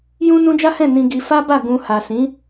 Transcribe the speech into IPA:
j ũ˦ n ũ˦ d͡ʒ a˦ h ɛ̃˦˨ n ĩ˧ ɡ i˧ f a˦ b a˦˨ ɡ ũ˧ h a˨ s ĩ˨˦

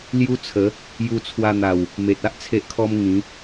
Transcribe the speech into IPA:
l j u˦ t͡sʰ ə˨˦ | j u˧ t͡sʰ w a˧ n̪ a˨˩ w | m e˨ t̚ a˦ ʔ t͡sʰ e˦ ʔ kʰ ɔ˦ m ŋ ĩ˨˦

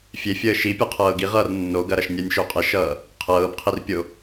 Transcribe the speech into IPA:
fʲ e fʲ əː ʃ i pʲ ʌ qʰ ɤː ɡ i ʁ ʌː r nː o ɡ ɐ ɾ ɐ ʃ nʲ ɜ nʲ ʃ o qʼ e ʃ ʌː | qʰ ɤː b qʰ i r pʲ o

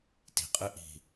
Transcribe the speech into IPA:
t i̤ qʼ ɨ ʔ i̤

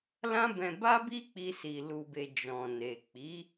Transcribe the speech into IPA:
l ã˦ b ɛ̃˧ b a˦ b i˦ k͡p i˧ s i˨ l u˨ b e˨ d͡ʒ ɔ̃˨ n e˨ k͡p i˨˦

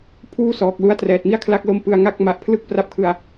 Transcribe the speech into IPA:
pʰ uː˥˩ s ɔː˨˩ k̚ l u˦˥ a̯ t r ɛː˨˩ t̚ m i˥˩ a̯ kʰ l a˦˥ k̚ l o˦˥ m p ɯ˧ a̯ ŋ a˦˥ k̚ m a˨˩ ʔ pʰ l ɯ˥˩ k̚ p r a˥˩ p̚ kʰ ɯ˧ a̯

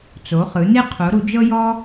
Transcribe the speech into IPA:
t͡s o˩˥ χ ɯ˩˥ n e˥ qʰ o˩˥ ɾ u˩˥ d͡ʒ ɤ˥ j ɔ˥

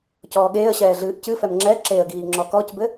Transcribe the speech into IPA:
c ɔː ɠ eː ə̯ ɕ ɛː ɮ ɨː ʔ c ɨ f ɛ m ŋ͡ǁ ɛ ǁ e ə̯ ɡ iː ŋ͡ǁ ɔ k ɔ c b ɘ

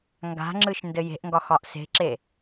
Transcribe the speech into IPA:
ŋ ɡ a̤ ŋ͡ǁ ɯ ʃ n d ɘ j e̤ ʔ ŋ ɡ ɒ x ɒ ʔ s e̤ ǁ e

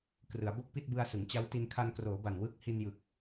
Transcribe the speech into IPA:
k r ɯ˩˦ a̯ b o˥˩ k̚ p i˥˩ t̚ b ɯ˧ a̯ s ɯ˩˦ ŋ t͡ɕ a˦˥ w t i˧ n kʰ a˧ n k r oː˩˦ b a˨˩ n w ɯ˦˥ k̚ h i˧ n j ɯ˨˩ k̚

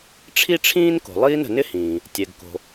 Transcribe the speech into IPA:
ʈ͡ʂʰ i˥ ʈ͡ʂʰ ĩː˥ n k o̤˩ lˠ iː˥ n ə̤˩ n ɪ˥ h ĩː˩ | tʲ ɛ˩ ɡ k o̤˩

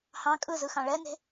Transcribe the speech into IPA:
h ɑ̃ kʼ ɯ z ɯ x ɑ̃ ɭ ɛ n e̤

